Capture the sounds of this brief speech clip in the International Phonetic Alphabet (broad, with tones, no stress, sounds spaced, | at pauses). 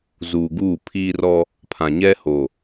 z uː˨ ɡ uː˦˨ pʰ iː˦ r ɔ˦ | pʰ ã˨ ɲ ɛ˦ h o˨